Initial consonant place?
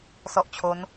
alveolar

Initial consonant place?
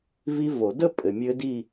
labial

